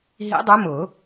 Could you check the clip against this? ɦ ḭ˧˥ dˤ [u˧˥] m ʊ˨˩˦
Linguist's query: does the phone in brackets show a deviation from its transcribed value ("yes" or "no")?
yes